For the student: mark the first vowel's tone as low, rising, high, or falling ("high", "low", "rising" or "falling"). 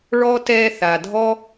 high